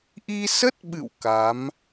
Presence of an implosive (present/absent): present